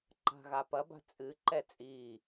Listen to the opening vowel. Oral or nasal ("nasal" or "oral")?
oral